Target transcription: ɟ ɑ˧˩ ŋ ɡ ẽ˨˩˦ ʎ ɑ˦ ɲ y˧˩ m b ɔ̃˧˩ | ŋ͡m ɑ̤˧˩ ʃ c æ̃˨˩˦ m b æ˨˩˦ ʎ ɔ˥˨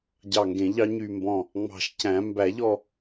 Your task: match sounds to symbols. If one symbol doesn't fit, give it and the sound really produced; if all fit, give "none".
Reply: none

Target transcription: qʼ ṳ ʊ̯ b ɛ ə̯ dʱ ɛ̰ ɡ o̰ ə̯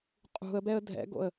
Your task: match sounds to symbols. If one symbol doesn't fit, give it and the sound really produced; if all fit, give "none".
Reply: ʊ̯ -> ə̯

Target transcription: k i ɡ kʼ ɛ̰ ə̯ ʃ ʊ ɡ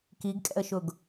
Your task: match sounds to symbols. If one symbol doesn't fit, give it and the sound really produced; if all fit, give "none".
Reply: none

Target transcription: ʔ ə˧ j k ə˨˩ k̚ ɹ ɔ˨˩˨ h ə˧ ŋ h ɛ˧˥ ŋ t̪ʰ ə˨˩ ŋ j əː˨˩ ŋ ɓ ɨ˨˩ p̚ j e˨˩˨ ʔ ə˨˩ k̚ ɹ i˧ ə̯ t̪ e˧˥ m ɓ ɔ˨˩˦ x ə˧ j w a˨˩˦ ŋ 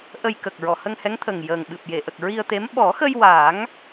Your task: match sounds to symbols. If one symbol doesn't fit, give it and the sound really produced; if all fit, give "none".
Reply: none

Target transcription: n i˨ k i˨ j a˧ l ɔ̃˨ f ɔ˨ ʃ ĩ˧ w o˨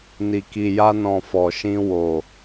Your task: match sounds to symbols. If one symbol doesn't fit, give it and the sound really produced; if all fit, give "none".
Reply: l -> n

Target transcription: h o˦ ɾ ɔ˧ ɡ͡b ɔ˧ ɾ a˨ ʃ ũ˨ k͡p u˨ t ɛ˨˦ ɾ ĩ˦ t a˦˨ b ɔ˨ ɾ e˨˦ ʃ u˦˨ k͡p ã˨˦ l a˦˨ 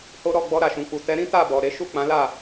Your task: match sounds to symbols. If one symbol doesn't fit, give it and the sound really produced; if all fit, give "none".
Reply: none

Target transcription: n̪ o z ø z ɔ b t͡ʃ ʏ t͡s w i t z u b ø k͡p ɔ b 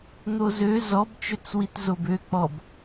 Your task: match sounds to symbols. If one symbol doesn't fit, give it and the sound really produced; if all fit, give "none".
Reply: u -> o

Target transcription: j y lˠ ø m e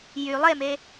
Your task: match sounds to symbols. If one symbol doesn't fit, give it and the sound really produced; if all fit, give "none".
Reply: ø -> e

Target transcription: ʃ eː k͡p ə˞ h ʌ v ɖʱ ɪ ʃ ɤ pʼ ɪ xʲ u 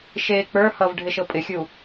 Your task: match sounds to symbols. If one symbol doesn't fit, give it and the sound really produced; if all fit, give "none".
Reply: none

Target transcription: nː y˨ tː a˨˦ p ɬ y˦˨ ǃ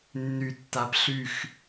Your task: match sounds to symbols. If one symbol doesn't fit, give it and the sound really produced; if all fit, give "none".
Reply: ǃ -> x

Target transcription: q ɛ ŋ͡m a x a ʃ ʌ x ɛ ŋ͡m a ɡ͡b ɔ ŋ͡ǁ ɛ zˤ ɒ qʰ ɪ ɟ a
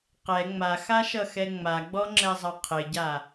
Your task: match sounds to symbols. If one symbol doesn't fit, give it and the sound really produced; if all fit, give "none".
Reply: ɒ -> ʌ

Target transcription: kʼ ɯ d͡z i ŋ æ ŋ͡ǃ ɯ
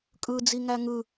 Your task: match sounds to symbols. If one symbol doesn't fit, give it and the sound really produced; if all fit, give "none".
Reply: ŋ͡ǃ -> ŋ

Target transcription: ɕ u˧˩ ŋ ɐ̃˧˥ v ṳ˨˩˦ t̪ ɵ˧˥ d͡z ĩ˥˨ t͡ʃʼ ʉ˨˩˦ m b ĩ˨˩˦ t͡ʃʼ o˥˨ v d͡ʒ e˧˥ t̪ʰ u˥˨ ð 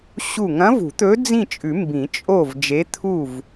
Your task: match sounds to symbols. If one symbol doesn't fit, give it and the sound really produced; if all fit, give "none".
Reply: ð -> v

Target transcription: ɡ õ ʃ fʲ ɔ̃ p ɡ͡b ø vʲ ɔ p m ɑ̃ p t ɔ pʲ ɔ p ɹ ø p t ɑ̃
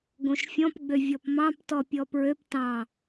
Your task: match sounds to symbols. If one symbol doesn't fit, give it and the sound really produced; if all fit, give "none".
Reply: none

